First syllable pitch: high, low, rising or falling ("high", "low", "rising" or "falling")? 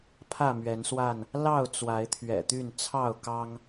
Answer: falling